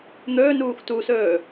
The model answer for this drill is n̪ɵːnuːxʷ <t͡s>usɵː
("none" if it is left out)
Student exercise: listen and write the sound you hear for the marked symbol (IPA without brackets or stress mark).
t